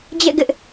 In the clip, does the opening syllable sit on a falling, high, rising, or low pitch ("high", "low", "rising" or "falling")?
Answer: falling